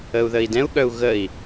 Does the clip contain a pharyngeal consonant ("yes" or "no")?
no